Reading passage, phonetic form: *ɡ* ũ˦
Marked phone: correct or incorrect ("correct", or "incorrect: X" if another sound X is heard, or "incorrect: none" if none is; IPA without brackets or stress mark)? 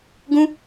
correct